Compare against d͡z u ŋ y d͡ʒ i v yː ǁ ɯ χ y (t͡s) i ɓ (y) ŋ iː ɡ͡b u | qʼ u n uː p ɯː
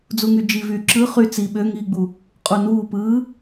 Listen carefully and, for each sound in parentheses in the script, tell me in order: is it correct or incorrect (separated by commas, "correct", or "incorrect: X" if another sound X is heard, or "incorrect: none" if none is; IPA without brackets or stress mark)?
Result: correct, incorrect: ø